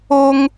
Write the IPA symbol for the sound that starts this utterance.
o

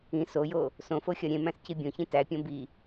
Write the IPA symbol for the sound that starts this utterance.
ĩ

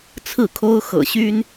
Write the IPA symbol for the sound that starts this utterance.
t͡sʰ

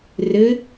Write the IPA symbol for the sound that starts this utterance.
r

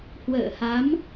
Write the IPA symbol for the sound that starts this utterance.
h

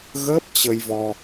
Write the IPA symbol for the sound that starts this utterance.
ɣ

